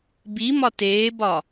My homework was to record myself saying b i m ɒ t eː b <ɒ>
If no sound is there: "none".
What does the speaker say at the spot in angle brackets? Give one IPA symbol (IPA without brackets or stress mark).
ɒ